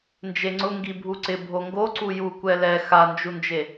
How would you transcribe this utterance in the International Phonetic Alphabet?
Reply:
n d͡ʒ e ŋ͡ǀ ʊ ŋ ɡ i bʱ u ǀ ɪ bʱ o ŋ ɡ o ǀ u j u kʷ ɛ l ɛ x a n d͡ʒ u n d͡ʒ e

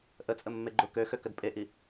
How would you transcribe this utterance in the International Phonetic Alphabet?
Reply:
ʔ ə t͡sʼ ə mː e ɡ͡ǃ ʊ k ø x ø k ə d pʼ e ʔ i

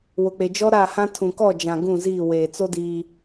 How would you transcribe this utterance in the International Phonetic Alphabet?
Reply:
w ʊ˨ k͡p e˨ d͡ʒ ɔ˦ ɾ a˦˨ h ã˦ tʰ ũ˨ k ɔ˦˨ d͡ʒ ã˨ ɡ ũ˦˨ z iː˦˨ w eː˨ t͡s o˦ d iː˦

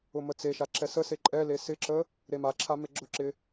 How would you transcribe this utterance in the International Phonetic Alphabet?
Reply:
ʊ m ə t͡s e ʃ a ǁ ɛ s ə s e ǃʼ ɛ l e s ɪ ǁ ə | ɾ e m a ǁʰ a m e ɡ͡ǁ ʊ ǁ ɪ

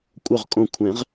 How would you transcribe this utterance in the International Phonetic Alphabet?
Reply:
kʷʼ œ˧˩ ʁ kʼ õ˧˩ kʷʰ ɛ̃˨˩˦ ʁ

